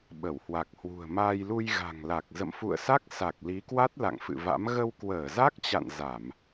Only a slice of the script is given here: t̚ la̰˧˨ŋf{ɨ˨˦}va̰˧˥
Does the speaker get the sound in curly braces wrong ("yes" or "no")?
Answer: yes